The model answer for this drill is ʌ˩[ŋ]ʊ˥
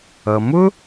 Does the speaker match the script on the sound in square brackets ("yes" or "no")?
no